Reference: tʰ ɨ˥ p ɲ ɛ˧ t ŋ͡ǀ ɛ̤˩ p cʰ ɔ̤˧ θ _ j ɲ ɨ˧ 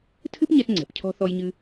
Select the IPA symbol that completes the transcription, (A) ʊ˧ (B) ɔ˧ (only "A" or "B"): B